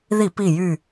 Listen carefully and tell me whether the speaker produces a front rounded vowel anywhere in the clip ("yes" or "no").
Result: yes